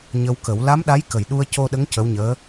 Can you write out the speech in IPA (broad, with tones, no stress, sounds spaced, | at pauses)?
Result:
ɲ ə˧ w k ə˨˩˦ w l a˧˥ m ɗ a˧˥ j k ə˨˩˨ j ɗ u˧ ə̯ c o˧ ɗ ə˧˥ ŋ c ə˧˥ w ɲ əː˧˥